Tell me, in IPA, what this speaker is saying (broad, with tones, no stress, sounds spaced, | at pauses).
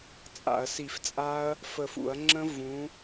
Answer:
t͡sʼ a̰˧˩˧ ɐ̯ s i˧˩˧ f t͡sʼ a˦˥ ɐ̯ | f ə˧˩ f ṵ˧˩˧ ɐ̯ ŋ͡ǁ ə̃˦˥ v ũ˨˥